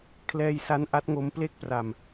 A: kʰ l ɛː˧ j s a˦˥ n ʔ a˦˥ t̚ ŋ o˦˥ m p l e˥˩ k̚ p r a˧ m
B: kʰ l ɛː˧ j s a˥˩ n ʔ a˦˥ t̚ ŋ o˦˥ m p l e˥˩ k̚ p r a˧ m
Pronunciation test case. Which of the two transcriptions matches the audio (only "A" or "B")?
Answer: A